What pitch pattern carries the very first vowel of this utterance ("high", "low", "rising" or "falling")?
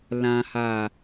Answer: low